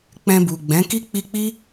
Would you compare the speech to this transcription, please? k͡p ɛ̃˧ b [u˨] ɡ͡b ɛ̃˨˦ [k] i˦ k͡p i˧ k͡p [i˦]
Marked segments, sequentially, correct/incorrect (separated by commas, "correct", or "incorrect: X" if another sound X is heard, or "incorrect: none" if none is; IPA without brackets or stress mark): correct, correct, correct